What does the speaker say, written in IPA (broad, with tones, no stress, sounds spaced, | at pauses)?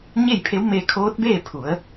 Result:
ɲ e˥˨ j pʰ e˧˥ w m e˧ kʰ oː˧˥ t̚ b eː˥˨ pʰ u˩˧ ə̯